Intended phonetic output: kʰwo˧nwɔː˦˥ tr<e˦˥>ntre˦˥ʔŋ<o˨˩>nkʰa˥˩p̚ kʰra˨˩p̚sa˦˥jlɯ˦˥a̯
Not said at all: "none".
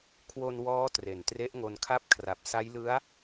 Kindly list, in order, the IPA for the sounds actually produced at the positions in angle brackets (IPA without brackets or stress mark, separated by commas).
e˨˩, o˧